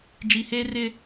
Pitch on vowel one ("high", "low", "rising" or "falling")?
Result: low